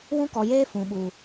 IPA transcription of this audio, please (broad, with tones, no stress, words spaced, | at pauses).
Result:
wũ˦kɔ˨jeː˦ fũ˨ɓu˨